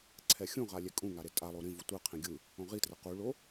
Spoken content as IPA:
ǀʰɛxʲũʁa lʲɛkʼũŋa ɾetʼalˠo ɾĩvu tʷɯqʰĩ ɡʲɯ | õʁitrʌ quɭo

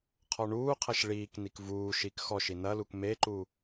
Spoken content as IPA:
qʰɔɳuːqʰɐʃ ɭiːk nikvuːʃik xɔʃ inɐluk meǃu

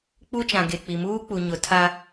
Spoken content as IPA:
k͡pu˦t͡ʃã˨ ɡe˨k͡pi˨ muː˦k͡pu˨ɲʊ˨ tʰa˦

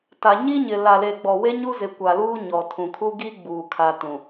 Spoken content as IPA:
ta˨ ɲi˦ɲɪ˨ la˨le˨ɡ͡bɔ˨we˦ ɲu˦zɪ˨kʷa˨luː˦ ɲɔ˨tʰũ˨kʰu˦ɡi˦ ɡ͡buː˨ kʰa˨tũ˨

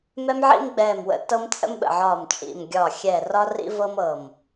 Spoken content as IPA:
mɛ˦mʕḭ˦mɡ͡bɛː˧˩mwə̰˧˩ tɤ˦mt͡sʼə̰˦mɓə̰˧˩ʕɒː˧˩m t͡ʃʼḭ˧˩mɡʲɒː˧˩ xʲɛː˧˩rɒ˦rḭ˦vɤ˦m ɤ˧˩m

